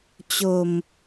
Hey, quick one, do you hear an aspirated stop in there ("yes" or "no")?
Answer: no